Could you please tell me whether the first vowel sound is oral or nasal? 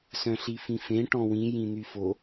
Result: nasal